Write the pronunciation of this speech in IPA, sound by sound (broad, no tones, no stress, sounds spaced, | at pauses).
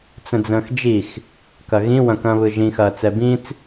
t͡s ə̃ d͡z ə̃ː x d͡ʒ i x | k ɐ ɣ ĩ w ɐ̃ k ɐ̃ː β ɯ ʒ ĩ x ɐː t͡s ɛ b ĩ t͡s